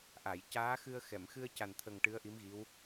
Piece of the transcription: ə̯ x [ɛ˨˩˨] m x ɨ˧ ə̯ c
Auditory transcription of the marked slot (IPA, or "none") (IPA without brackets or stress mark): ɛ˨˩˨